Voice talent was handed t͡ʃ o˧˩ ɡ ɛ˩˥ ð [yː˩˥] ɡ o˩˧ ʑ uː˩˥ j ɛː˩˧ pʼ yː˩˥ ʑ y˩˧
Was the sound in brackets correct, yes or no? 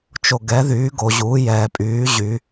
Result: yes